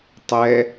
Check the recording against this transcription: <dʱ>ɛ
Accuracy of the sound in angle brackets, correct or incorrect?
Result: incorrect